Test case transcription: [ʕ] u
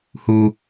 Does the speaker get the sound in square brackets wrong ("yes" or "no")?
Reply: yes